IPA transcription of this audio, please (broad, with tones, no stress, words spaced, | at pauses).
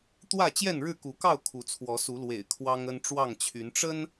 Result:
t̪wä˥˨t͡ɕjɛ˥˨nɻɻ̩˥˨ ku˨˦kɑ˥˨ʊ̯ kʰu˨˦t͡sʰwɔ˨˦su˨˦lwḛ˨˩ɪ̯ kʰwɑ˦ŋə˦n ʈ͡ʂwɑ˥˨ŋt͡ɕʰy˨˦n ʈ͡ʂə˦n